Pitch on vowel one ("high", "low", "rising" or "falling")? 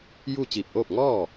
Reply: falling